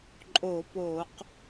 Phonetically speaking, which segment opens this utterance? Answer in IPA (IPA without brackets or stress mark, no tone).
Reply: ǃʼ